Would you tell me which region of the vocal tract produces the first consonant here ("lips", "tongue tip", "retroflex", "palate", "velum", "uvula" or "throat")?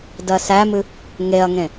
tongue tip